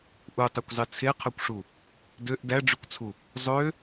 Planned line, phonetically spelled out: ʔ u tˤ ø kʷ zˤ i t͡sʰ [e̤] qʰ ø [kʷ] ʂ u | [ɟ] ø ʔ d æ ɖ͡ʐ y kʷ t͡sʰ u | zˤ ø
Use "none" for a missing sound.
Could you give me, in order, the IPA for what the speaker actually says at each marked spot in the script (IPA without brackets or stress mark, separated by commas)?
e, kʷ, d